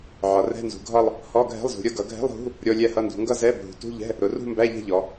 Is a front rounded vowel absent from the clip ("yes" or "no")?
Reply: yes